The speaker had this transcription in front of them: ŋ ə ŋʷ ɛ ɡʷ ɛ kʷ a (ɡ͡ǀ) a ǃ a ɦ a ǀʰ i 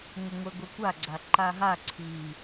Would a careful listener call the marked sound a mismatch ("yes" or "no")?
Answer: no